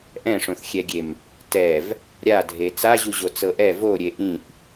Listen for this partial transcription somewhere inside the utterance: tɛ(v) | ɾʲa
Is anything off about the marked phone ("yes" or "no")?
no